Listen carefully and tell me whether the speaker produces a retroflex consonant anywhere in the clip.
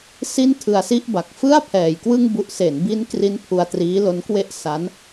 no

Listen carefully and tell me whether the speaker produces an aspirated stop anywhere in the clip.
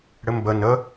no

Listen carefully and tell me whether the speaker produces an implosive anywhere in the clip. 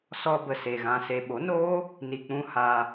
yes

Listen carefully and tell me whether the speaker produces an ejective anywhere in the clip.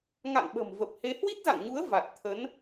no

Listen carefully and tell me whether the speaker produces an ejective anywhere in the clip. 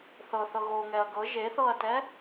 no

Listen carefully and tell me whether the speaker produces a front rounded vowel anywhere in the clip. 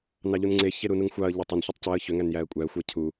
yes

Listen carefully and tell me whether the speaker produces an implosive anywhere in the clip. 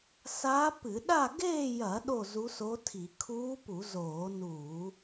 yes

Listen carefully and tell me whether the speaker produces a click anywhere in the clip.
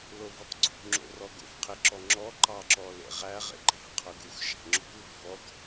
yes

